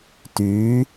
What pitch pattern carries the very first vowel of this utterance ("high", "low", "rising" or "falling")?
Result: rising